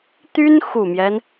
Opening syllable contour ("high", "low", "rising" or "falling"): high